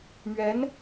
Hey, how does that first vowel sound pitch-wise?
rising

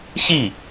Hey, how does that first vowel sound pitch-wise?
falling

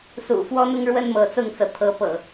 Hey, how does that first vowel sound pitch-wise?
low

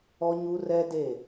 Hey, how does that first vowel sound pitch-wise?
high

